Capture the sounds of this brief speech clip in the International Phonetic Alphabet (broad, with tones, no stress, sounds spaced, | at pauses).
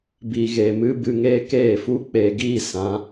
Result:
b i˨ ɣ e˨ m ɨ˦ b ɨ˧ ŋ e˦ k eː˦˨ f u˦ k͡p e˧ ɡ iː˦ s ã˨˦